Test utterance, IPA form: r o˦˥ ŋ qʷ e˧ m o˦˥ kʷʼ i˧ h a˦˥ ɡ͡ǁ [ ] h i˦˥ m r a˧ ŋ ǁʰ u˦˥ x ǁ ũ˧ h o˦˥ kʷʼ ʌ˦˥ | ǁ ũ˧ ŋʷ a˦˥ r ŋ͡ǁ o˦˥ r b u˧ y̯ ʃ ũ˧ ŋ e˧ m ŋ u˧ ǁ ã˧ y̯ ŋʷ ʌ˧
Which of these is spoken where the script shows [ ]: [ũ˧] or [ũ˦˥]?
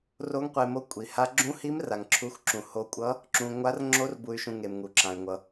ũ˦˥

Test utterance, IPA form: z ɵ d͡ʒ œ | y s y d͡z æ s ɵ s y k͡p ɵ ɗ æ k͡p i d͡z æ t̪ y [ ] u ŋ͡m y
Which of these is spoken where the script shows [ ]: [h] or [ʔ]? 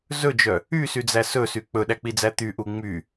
ʔ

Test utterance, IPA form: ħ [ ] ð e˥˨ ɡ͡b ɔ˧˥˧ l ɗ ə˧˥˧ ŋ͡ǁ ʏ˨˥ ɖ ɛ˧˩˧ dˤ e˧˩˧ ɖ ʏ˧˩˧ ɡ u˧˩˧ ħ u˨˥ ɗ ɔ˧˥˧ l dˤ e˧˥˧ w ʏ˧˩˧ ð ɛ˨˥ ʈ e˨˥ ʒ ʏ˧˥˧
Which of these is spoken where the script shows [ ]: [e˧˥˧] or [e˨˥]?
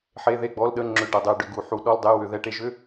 e˧˥˧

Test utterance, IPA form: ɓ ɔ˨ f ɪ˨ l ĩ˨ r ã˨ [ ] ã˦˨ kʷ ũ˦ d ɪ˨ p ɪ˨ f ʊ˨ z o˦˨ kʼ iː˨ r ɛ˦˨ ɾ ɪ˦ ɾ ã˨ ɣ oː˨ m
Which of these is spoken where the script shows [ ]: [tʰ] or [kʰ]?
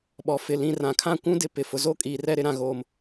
kʰ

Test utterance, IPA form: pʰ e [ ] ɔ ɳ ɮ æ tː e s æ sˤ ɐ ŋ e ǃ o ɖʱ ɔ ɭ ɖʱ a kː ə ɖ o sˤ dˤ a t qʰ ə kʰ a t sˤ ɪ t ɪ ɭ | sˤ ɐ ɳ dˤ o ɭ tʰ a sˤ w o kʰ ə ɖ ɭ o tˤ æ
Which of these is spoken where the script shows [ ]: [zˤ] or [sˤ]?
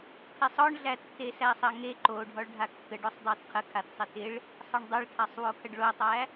sˤ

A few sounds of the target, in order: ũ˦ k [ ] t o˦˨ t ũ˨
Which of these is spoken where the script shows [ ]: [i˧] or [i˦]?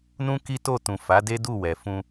i˦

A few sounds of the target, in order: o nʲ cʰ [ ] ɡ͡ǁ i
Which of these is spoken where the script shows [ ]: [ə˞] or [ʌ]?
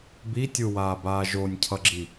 ʌ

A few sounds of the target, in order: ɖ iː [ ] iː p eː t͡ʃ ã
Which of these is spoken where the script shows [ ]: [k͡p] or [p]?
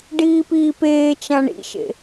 p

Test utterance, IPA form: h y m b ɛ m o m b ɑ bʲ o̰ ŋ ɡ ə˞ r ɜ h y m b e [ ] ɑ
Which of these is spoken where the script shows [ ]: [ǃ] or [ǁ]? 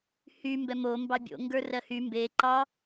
ǃ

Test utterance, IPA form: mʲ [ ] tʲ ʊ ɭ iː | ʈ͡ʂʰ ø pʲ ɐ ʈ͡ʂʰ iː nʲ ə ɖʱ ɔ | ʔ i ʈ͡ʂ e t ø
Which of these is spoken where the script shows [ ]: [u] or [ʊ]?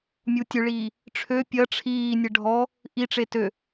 u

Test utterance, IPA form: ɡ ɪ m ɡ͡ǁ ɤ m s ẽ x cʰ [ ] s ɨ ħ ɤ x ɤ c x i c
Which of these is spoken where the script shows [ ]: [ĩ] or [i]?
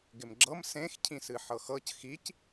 ĩ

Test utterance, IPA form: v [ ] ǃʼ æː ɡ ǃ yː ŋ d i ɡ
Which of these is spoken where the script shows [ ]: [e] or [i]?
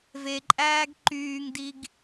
e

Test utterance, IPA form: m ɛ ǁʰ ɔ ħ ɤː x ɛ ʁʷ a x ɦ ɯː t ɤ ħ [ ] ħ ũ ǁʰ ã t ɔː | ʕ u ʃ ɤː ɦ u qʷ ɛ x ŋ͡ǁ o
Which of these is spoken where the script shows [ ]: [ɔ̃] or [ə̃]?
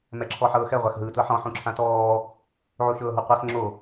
ɔ̃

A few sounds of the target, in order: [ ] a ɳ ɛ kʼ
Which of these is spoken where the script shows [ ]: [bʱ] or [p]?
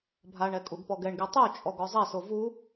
bʱ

